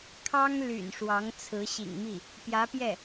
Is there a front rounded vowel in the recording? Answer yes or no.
yes